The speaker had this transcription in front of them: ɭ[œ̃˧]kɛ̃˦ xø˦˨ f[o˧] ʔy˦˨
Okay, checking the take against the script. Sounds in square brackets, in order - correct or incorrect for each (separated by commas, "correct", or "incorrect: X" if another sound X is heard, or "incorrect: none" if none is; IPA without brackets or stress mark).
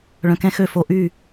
correct, correct